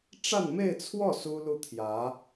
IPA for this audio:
ʈ͡ʂa˥˧nme˥˧ɪ̯t͡sʰwɔ˥˩ su˥lu˥˩t̪ʰjä˧˥

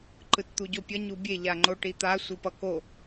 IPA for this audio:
ǃɯtt̪uɟopʲʌ ɲubʲe ʎaŋ͡ǃoʈit̪a sʷɯpʌko

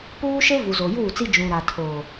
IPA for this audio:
puː˦ʃe˦ vu˨zo˨juː˦˨t͡si˦ d͡ʒũ˨ ɾa˨tʰo˨

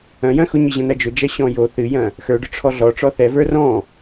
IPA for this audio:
ɐ̃jɐ̃ xʊɲɨʑɐ̃nɐ d͡ʒʊd͡ʒɐ ɕɔ̃jo θɨjɐ̃ | xə˞ɖʊʈ͡ʂʰɔ ɮɔʈ͡ʂɔ θɛvə˞ rɔ̃

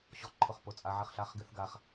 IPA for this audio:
ɕɔ˧ ǃʰʊ˧˩χpʊ˧˩t͡sʼa˧ ʕɪ˧˩χɬa˧χɡɪ˧˩˧θɡa˧˩χ

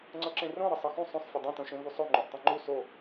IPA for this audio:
ŋ͡ǀɤǁẽrõ ɾɤsˤɤxũ sˤõsˤ fʲɤdˤẽ tõʃẽvusˤo ŋ͡ǃũʔtˤõŋ͡ǃu so

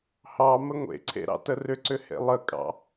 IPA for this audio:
hɑ məŋʷḛǀʰḛ ɾɑ̰tərʏǀʏ hḛlˠəkʼɑ̰

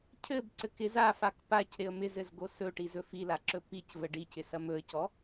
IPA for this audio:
cʰɘb ǀɘkɪz afak pac ɾɪə̯mɪzɘz ɡosɵʈi zɵfilaǁɵ picvə ɖicɪsɐ mɵə̯cɔ

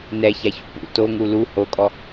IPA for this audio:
nɛçaçṵ pṵ toŋu lu hokʼɔ

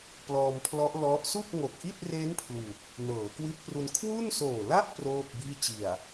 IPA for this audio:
plɔː˧mpʰlɔ˦˥ʔ lɔ˦˥ʔ su˥˩k̚ŋo˨˩k̚ʔi˥˩t̚re˦˥n pʰlu˨˩k̚ | nɤː˩˦ kwi˦˥t̚pru˧n kʰwu˥˩nsoː˨˩la˥˩ʔ proː˥˩p̚biː˥˩ t͡ɕi˨˩a̯

